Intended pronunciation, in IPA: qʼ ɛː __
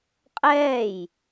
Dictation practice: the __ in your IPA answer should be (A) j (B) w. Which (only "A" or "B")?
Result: A